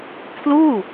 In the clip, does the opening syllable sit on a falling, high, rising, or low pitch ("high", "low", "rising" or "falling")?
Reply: falling